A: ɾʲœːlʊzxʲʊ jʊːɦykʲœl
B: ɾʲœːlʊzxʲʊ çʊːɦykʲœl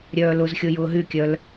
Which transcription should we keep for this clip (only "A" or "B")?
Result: A